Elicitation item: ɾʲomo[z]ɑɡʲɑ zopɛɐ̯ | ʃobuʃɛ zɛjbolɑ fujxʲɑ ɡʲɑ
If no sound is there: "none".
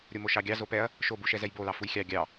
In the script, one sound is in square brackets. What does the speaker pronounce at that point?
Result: ʃ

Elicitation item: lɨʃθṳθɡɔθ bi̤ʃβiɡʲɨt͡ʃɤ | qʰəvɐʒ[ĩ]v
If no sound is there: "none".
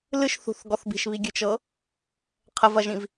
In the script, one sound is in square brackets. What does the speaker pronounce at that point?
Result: ĩ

